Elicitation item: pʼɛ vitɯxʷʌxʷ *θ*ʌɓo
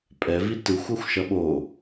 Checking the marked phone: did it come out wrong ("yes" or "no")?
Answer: yes